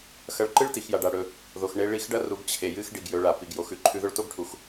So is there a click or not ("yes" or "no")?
yes